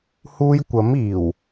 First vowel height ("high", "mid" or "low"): high